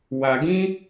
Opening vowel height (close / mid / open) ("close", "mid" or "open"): open